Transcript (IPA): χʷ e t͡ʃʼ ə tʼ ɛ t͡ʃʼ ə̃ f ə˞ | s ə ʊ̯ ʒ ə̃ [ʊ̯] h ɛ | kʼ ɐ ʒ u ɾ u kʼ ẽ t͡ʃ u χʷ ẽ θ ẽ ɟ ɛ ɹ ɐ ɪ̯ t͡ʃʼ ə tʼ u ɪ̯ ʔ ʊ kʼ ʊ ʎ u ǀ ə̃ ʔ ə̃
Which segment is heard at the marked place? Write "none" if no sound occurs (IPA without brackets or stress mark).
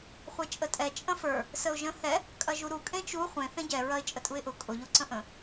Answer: none